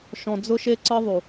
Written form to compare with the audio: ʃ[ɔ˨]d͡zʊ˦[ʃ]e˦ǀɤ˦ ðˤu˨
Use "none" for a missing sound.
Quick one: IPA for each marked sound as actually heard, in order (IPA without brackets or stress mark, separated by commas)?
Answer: ɔ̃˨, ʃ